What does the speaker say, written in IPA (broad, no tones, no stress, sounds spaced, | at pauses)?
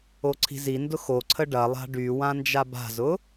o ǀʰ i̤ z i n d ʊ x o ǀʰ ə ɖ ɐ lˠ a̤ ɖ y w ã n d͡ʒ a b a̤ z ʊ